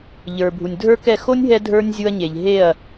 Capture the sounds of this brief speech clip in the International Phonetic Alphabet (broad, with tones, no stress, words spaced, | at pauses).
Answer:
ʎə˞˨bʱu˨nʲdʱə˞˦kɛ˦˨ xo˦nʲ ɦɛ˦ dʱə˞˦nʲ zʲu˧ɐ̯ɲe˨ʎ ɦe˦˨ɐ̯